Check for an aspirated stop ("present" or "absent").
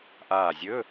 absent